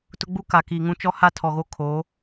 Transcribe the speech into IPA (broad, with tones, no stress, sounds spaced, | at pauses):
t ʊ˦ ɡ͡b u˦ k a˨ k iː˨ ŋ ũ˦ t͡ʃ ɔ˦ h a˦ tʰ ɔ˨ ɣ o˦ kʰ oː˨˦